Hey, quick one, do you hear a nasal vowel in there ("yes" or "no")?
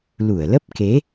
no